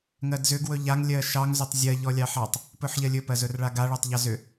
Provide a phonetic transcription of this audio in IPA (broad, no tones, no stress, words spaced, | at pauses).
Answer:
ŋɜdzʏ ɡwɵʎaŋ lʲɜʃɑŋ zʏtˤzʲɜ ʎɔlʲɑħɑtˤ | pɵħʎɜlʲɵ pɜzɵrɭaɡa ɭɜtˤʎɑzʏ